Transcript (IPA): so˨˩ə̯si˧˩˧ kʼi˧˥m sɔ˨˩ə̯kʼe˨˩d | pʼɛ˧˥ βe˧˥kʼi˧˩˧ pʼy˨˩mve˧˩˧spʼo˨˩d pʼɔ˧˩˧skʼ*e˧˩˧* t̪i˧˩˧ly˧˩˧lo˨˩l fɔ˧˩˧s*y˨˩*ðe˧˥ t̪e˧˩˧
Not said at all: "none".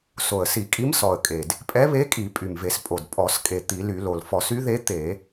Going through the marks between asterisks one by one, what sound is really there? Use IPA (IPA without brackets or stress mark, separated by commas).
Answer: e˨˩, y˧˥